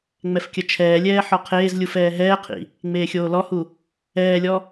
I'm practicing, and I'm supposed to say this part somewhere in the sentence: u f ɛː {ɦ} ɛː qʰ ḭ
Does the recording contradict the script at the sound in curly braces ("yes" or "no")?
no